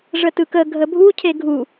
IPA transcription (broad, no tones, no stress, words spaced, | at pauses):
ʐətɯkə ɡʱəbʱu cʰeɡʱu